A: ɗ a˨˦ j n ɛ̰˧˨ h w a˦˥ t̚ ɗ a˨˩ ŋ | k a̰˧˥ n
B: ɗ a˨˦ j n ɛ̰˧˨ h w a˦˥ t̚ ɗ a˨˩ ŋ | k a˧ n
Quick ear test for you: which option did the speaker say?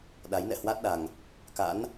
A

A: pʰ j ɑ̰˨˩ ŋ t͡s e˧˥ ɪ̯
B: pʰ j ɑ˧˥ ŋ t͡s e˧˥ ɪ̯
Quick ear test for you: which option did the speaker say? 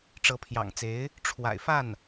A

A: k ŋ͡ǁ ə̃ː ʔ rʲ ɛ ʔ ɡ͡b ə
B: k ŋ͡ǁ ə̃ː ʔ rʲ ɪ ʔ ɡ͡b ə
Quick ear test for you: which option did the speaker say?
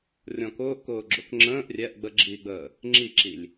A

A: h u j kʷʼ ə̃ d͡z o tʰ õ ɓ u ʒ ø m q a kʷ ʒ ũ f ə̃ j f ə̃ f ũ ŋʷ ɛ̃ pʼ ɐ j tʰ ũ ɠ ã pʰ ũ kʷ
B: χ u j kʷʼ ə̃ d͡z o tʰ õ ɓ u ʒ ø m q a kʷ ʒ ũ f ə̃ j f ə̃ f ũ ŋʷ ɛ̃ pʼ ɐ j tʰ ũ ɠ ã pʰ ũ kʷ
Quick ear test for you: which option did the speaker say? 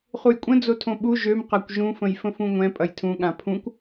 B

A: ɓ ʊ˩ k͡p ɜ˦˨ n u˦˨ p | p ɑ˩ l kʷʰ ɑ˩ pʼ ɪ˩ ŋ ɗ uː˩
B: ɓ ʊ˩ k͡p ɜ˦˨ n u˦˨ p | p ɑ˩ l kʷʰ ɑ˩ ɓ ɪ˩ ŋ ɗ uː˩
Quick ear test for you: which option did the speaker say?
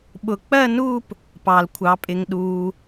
A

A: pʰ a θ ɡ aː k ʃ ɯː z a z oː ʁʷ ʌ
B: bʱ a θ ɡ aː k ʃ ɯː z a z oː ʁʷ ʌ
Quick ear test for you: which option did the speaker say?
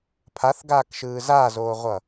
A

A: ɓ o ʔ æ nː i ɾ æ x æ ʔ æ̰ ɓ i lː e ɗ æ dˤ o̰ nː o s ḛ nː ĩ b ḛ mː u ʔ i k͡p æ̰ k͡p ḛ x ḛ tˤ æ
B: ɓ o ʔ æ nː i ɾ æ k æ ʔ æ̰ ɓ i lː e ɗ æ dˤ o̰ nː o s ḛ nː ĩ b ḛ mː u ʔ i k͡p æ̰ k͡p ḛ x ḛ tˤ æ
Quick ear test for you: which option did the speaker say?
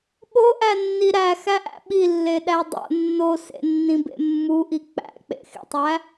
A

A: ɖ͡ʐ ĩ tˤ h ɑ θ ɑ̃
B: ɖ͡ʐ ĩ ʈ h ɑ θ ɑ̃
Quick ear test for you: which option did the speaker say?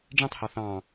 A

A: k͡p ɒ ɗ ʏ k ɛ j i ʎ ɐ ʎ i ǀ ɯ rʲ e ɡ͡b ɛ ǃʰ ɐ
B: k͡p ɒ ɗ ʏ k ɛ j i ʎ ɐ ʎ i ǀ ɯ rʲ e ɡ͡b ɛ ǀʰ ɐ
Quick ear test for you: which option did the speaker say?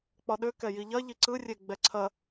B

